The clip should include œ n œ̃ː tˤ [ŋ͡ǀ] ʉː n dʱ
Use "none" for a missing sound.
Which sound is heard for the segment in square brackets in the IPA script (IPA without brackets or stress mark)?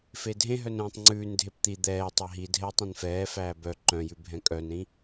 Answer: ŋ͡ǀ